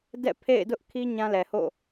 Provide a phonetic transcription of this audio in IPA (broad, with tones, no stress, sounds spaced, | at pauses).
d ɛ̰˦˨ pʰ ḛ˦˨ ɪ̯ d ʊ˦ ʔ kʰ i˦ ɲ ã˦ l ɛ˨ h o̰˦˨